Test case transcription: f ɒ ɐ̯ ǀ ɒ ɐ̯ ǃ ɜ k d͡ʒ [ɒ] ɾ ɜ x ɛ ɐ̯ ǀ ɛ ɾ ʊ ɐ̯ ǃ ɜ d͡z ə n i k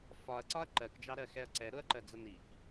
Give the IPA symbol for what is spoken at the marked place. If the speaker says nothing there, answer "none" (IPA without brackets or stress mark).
ɑ